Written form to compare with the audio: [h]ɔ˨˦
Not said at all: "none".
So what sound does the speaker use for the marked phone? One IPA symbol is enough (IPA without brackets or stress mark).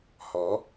h